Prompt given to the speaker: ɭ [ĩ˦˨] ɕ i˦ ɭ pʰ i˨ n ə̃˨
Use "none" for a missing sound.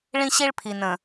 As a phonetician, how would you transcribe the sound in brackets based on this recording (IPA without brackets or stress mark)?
ĩ˦